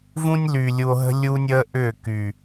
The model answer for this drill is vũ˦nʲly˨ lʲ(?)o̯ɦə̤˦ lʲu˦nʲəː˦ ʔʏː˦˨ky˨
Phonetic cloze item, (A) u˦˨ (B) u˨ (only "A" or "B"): B